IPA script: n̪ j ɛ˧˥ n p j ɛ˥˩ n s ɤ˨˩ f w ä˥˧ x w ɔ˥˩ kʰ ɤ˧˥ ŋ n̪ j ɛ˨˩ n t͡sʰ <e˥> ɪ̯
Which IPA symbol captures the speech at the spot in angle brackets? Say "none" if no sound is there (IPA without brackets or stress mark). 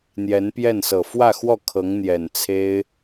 e˥